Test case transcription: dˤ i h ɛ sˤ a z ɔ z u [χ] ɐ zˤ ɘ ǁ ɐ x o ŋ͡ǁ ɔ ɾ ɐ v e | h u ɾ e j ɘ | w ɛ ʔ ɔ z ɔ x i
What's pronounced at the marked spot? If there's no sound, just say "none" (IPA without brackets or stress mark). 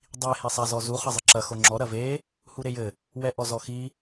χ